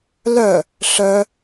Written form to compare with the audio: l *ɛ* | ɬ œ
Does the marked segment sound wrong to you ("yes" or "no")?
yes